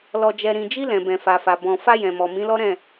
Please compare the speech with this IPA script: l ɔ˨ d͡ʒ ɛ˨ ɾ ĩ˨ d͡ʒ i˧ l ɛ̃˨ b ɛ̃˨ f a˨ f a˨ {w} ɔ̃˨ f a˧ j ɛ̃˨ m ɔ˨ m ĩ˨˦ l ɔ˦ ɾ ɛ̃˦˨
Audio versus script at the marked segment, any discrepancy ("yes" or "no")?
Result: yes